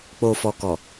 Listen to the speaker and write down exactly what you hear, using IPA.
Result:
k͡po˨fɔ˨kɔ˨

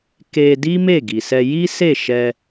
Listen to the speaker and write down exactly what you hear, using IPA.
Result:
ke˧di˦ me˦˨ɡi˨sɛ˧ ji˦se˦˨ ʃɛ˧

